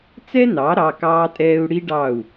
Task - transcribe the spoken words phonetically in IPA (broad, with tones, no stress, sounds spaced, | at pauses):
t͡s ɛ˦ n ɑ˩˧ ɾ ɑ˩˧˩ k ɑː˦ tʼ ɛː˦ u̯ ɽ i˦ ɖ ɑ˦˨ u̯